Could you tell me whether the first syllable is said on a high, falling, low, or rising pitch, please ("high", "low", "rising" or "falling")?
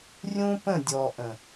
high